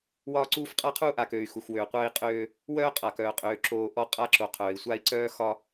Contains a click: yes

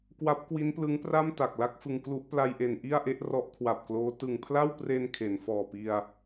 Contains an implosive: no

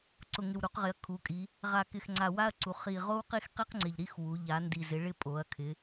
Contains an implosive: no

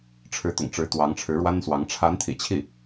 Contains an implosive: no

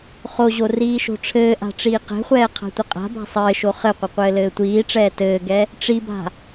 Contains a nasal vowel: no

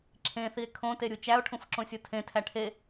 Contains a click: yes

